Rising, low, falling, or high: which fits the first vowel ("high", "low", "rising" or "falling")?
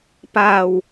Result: low